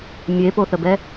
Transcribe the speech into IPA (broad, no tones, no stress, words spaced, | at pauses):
mʲepoθəbɛ